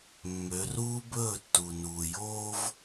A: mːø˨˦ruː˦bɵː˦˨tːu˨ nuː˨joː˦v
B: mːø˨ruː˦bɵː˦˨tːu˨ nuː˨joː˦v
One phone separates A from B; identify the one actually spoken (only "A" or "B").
A